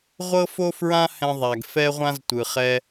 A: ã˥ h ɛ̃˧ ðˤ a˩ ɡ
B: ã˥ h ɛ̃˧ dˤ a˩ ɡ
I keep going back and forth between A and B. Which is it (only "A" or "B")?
A